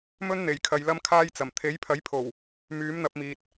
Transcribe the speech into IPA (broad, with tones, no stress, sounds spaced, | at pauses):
m ɵ˥ n n̪ e˨˩ j kʰ ɐ˨ j l ɐ˧ m kʰ aː˧ j t͡s ɐ˨˩ m t̪ʰ e˨˥ j pʰ ɐ˨˥ j pʰ o˨˩ w | m yː˨˥ m n̪ ɐ˧ p̚ m iː˨ t̚